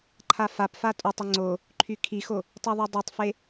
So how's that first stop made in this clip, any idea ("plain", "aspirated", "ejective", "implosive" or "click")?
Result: click